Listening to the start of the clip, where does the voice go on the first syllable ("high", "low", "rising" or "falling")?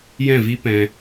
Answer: falling